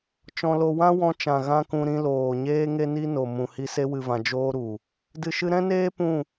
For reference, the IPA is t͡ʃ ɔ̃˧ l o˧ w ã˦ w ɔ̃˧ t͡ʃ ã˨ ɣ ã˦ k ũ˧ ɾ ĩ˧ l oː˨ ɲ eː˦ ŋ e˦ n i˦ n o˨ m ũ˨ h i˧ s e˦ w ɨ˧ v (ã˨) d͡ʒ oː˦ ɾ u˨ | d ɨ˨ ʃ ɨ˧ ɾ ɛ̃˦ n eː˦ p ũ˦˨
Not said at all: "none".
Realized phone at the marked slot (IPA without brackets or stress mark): ã˧